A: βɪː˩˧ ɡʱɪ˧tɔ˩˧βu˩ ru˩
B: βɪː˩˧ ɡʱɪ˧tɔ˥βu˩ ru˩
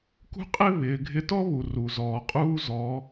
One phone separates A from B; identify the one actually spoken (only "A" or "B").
B